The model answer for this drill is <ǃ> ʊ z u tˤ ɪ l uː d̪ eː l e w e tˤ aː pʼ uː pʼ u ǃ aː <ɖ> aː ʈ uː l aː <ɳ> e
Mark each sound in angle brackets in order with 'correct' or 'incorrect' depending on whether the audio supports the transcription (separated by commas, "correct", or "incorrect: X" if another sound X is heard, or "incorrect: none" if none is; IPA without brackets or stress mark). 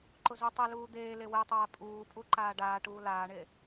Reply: correct, correct, correct